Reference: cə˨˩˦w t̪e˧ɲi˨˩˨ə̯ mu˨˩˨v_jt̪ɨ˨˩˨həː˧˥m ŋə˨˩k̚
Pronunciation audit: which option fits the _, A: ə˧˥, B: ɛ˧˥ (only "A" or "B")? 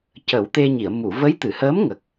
A